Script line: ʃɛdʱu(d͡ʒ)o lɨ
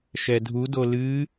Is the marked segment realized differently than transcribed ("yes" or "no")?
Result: yes